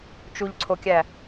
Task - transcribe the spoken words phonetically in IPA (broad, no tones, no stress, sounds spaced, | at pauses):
t͡ʃ u ʎ ǀʰ o kʲ æ